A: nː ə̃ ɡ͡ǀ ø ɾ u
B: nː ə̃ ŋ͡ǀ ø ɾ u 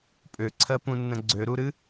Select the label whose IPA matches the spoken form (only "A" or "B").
A